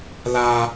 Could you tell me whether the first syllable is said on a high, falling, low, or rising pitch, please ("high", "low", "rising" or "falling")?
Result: high